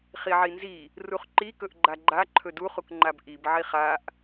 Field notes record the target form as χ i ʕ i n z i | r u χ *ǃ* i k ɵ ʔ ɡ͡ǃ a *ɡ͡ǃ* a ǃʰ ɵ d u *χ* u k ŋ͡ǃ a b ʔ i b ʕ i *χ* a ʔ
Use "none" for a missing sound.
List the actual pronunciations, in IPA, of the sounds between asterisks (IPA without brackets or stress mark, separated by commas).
ǃ, ɡ͡ǃ, χ, χ